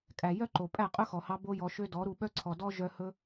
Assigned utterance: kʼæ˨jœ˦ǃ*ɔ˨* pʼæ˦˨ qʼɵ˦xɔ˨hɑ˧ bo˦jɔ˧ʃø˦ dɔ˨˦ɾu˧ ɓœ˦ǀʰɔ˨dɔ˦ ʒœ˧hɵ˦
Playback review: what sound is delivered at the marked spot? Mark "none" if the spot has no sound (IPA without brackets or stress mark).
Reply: o˨